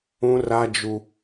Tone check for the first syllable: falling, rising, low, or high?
high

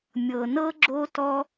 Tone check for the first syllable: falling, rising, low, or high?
low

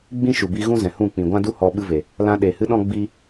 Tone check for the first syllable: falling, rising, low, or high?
high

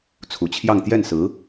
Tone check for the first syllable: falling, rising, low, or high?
low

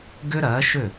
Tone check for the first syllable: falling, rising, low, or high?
high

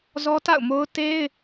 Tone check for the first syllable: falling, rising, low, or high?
high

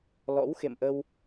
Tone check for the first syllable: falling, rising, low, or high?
rising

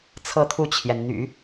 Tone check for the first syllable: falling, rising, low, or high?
falling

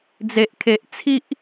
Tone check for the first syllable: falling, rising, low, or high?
low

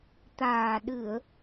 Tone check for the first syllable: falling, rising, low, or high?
low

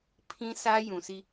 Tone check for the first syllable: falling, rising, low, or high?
high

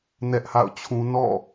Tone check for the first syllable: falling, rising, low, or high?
high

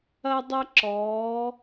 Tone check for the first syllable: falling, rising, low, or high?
high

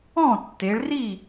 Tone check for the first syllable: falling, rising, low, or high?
falling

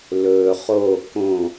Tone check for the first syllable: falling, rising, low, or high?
low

